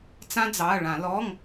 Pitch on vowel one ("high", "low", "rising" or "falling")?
high